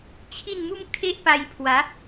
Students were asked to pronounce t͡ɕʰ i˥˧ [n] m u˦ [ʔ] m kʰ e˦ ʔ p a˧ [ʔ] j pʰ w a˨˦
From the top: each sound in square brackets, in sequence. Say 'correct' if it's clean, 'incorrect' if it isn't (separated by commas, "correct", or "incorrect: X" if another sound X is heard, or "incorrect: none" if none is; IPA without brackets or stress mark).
correct, incorrect: none, incorrect: none